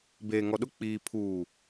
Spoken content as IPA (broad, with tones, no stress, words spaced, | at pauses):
beː˨ŋɔ˨ɗʊ˦k͡piː˨ pʰuː˨